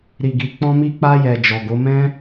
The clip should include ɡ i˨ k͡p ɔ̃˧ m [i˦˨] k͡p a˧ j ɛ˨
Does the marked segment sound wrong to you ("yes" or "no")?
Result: yes